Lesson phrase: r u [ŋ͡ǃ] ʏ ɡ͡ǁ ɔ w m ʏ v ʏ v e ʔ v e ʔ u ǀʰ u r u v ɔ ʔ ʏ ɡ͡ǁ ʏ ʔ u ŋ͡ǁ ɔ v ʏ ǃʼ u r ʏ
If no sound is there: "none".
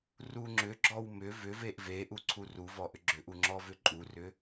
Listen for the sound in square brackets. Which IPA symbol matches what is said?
ŋ͡ǁ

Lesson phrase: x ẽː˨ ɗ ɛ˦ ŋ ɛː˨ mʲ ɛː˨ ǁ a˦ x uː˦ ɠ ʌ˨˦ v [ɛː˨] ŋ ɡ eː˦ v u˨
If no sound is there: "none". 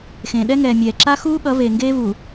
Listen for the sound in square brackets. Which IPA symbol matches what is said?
eː˨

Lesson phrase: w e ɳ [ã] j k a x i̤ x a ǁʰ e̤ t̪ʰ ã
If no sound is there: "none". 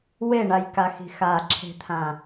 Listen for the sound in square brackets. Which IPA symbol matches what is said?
a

